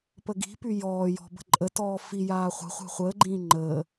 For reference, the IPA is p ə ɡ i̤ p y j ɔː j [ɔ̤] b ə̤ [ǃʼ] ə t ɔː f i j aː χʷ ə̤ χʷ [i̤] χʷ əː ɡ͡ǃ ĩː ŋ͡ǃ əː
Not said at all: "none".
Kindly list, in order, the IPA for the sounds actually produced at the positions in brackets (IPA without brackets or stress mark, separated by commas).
ɔ̤, ǃʼ, e̤